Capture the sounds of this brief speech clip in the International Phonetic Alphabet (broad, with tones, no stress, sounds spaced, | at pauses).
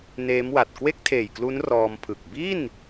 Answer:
n eː˦˥ m w a˨˩ t̚ k w e˥˩ k̚ tʰ eː˨˩ j k l u˦˥ n r ɔː˧ m pʰ ɯ˨˩ k̚ b i˥˩ n